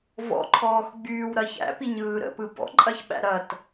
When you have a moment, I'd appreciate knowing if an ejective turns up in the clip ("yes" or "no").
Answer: yes